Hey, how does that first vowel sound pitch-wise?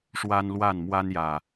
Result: high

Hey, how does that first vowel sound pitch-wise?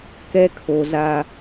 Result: high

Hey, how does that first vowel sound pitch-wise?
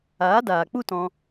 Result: rising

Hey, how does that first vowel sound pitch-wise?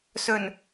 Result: low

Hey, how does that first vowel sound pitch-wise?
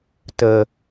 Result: low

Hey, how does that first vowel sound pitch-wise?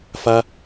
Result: high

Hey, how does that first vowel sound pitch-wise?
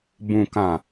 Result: low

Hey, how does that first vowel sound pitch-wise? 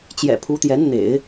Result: low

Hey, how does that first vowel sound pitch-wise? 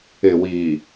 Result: low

